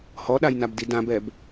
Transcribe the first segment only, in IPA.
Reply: h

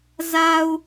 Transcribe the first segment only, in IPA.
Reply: z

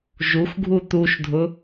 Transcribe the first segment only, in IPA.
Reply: ʒ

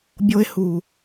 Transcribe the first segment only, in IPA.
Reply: bʲ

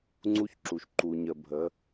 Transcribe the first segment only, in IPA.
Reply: ŋ͡ǀ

